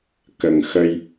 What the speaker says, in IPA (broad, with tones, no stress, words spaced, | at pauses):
kə˨˩ŋxə˧j